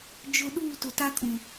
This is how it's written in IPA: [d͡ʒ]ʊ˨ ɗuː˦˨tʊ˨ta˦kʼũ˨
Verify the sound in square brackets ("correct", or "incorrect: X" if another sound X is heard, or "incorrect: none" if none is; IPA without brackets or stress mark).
correct